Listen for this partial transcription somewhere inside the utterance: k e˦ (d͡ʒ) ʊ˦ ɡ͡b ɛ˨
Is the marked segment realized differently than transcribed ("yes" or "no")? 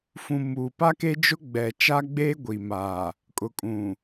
no